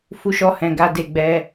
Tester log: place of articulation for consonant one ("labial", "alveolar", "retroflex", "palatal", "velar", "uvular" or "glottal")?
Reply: labial